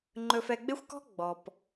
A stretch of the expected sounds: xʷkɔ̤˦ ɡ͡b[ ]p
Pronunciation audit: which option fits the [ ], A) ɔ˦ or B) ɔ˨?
B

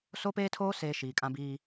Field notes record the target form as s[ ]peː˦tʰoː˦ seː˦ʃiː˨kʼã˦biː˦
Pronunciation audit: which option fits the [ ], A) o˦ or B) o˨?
A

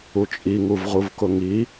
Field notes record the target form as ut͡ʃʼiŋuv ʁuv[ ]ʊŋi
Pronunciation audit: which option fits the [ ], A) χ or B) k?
B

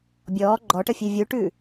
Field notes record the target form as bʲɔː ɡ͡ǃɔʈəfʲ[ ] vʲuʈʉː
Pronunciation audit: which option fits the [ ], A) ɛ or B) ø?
B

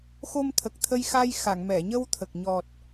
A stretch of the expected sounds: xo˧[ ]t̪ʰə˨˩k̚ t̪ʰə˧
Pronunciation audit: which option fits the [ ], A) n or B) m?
B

